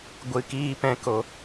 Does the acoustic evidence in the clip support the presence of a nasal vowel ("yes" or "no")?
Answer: yes